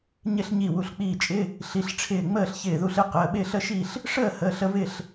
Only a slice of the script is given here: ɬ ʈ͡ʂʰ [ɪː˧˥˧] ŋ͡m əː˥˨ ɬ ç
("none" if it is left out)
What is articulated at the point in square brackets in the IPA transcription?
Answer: ɪː˧˩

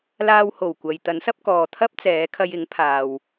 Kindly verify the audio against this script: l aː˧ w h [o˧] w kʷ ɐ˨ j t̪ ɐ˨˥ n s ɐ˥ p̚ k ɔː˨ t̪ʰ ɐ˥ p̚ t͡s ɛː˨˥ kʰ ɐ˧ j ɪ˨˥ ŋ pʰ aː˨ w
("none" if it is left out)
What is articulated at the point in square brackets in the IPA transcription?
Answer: o˨˩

